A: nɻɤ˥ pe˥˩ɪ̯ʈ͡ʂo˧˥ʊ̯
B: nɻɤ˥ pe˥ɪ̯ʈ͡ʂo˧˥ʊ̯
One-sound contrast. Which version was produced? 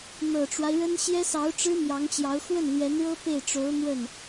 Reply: A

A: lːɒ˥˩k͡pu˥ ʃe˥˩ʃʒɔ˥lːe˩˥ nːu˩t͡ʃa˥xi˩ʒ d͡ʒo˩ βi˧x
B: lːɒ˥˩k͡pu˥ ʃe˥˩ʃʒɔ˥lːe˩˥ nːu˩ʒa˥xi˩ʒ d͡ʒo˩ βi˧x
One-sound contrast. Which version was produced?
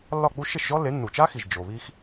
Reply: A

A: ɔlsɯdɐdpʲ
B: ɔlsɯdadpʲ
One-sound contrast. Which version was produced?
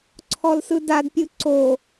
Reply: B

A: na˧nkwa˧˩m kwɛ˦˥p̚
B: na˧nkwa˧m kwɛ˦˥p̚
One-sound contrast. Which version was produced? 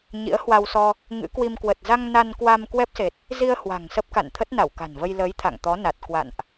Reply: B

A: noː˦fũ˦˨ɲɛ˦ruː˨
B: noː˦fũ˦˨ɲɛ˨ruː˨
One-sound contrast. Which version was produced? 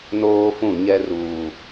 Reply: A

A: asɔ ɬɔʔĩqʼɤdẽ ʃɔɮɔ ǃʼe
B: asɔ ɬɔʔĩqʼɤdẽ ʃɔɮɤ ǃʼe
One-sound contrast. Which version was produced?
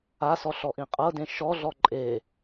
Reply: A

